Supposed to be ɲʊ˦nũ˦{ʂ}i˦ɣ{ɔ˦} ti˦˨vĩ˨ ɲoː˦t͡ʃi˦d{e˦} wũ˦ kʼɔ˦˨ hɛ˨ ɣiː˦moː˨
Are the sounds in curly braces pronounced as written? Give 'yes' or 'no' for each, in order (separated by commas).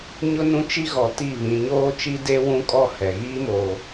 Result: no, no, yes